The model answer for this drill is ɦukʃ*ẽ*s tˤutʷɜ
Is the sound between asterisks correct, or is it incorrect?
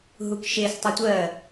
incorrect